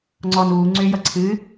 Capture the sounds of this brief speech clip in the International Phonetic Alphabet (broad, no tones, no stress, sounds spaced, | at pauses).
ŋ͡ǀ ɔ n uː ŋ͡ǀ ʏː j ʌ ǀʰ ɨ